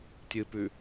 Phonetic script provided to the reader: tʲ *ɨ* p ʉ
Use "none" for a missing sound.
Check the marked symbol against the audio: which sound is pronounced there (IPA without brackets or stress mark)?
ɨ